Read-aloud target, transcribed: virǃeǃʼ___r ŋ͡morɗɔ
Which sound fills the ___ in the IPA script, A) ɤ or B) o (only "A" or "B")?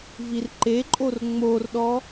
B